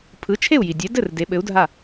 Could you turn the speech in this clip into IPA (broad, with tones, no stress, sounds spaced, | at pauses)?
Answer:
pʰ ɯ˩˥ t͡ʃʰ e˥˩ u̯ j i˩ dʲ ɛ˩˥ d ɘ˥˩ r d e˩˥ ɓ ɘ˩˥ u̯ dʱ a˥˩